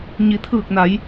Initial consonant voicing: voiced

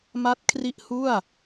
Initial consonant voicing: voiced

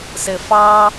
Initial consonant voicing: voiceless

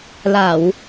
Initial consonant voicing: voiced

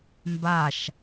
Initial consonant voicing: voiced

